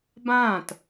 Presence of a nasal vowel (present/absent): present